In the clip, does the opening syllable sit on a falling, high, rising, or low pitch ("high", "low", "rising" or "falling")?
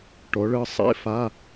rising